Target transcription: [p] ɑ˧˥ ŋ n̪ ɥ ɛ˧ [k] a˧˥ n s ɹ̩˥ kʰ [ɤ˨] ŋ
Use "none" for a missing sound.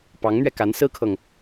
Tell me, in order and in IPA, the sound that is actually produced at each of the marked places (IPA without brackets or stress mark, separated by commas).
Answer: p, k, ɤ˨